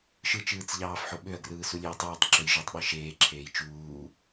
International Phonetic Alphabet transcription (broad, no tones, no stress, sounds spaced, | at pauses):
ʃ ɯ t͡ʃ ɯː t͡s ʎ ɑː f ħ o ɓ ø ɐ̯ ɡ r ɯː s u lʲ eː tˤ ɯː tˤ ǁ ø j ʒ ø tˤ ɓ ɯ ʃ eː ǁʰ eː j t͡ʃ uː